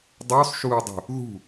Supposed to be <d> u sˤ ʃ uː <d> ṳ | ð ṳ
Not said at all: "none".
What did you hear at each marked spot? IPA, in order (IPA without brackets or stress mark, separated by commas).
dˤ, dˤ